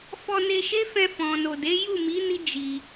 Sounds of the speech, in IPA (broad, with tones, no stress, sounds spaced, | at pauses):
f ɔ˧ n e˧ ʃ e˦ f ɛ̃˧ f ɔ̃˨ n o˨ d e˨˦ j u˦˨ m i˨˦ n i˦ d͡ʒ i˧